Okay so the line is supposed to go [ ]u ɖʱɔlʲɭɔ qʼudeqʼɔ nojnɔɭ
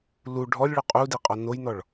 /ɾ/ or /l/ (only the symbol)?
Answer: l